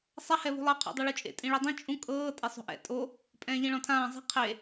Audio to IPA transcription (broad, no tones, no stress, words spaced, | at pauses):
sˤa hɛβṳlˠɤ qʰo̰dˤuɭut͡ʃʼḛ tʼĩɭidˤĩ t͡ʃʼũ kʼɤː tʼesˤo̤ʔɛ̰ tʼo | pʼɛ̃ːʎĩɭɔ̃tʰãː zˤi̤ qʰe